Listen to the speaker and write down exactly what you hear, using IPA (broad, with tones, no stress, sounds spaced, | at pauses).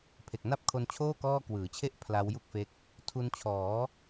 pʰ e˨˩ k̚ n a˥˩ p̚ kʰ o˧ n t͡ɕʰ oː˥˩ k ɔː˥˩ k w ɯː˩˦ t͡ɕʰ e˥˩ ʔ pʰ l a˦˥ w j u˥˩ k̚ f e˦˥ k̚ | tʰ u˧ n t͡ɕʰ ɔː˩˦